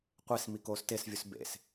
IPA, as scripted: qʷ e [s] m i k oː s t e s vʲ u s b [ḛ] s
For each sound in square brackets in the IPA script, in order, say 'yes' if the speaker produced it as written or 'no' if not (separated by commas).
yes, yes